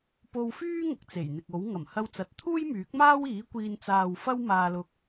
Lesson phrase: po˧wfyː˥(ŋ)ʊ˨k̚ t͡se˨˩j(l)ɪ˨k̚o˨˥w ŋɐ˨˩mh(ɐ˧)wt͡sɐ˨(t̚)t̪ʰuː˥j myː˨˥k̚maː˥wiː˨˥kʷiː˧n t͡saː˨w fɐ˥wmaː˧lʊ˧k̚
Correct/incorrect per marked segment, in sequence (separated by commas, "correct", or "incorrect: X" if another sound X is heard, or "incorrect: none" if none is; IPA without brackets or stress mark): correct, incorrect: n̪, correct, correct